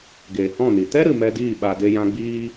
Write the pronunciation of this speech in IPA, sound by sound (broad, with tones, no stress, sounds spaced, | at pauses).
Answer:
ɡ eː˨ h ɔ̃˦˨ n i˨ t ɛ˦ ɾ ɨ˨ m ɛ˧ d iː˦˨ ɓ a˧ d e˦ j ã˦ ɡ͡b iː˦